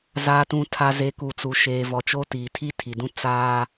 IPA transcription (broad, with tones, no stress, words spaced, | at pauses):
zaː˨tũ˨ tʰa˨ze˨ ku˨t͡su˨ ʃeː˨vɔ˨t͡ʃoː˦ tiː˨tʰi˦tʰi˨dũ˦ t͡saː˦